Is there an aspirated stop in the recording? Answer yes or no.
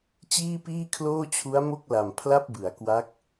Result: yes